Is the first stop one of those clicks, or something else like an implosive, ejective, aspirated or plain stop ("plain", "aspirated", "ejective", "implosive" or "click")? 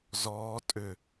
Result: ejective